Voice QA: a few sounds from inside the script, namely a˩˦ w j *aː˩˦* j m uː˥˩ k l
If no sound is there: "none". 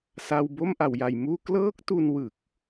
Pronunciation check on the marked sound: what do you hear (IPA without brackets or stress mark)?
a˩˦